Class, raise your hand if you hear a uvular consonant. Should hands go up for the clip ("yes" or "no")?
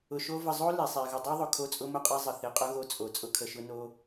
yes